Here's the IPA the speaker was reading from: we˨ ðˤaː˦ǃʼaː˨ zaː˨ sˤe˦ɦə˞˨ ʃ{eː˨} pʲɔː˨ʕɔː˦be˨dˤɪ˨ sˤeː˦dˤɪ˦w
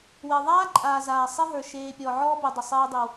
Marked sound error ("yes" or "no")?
no